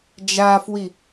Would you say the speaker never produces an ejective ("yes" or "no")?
yes